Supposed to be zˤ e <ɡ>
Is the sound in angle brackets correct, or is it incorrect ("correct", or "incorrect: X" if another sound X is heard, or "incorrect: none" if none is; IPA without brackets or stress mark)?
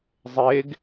correct